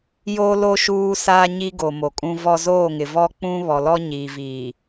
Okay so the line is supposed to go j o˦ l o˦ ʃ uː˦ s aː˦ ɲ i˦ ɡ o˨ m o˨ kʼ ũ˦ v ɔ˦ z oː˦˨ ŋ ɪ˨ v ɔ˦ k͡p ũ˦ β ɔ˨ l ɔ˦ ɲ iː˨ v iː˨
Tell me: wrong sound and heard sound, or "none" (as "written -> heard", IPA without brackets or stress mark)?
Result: none